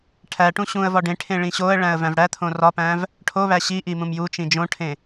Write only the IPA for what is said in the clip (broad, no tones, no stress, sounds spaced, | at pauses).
ʈʰ æ ʈ ũ ɕ ũ ə̯ v ɒ ɖ ẽ ʈʰ ẽ ɭ ĩ ɕ o ə̯ ɭ æ̃ ə̯ v æ̃ v ɽ æ t̪ʰ õ r ɒ p æ̃ v | ʈʰ o β æ ɕ i ʔ i m ũ m j u t͡ʃ ĩ d͡ʒ õ ʈʰ ẽ